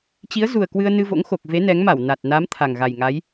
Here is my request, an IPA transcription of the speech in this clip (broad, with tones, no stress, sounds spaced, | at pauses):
t͡ɕ i˨˦ ə̯ z u˨˩ ə̯ k w ɨ˧ ə̯ n ɨ˧ v o̰˧˥ ŋ x o˨˩ k̚ v e˨˦ n ɛ˨˦ ŋ m a˧˩ w n a˨˩ t̚ n a˨˦ m t̪ʰ a˨˩ ŋ ɣ a˨˩ j ŋ a˨˦ j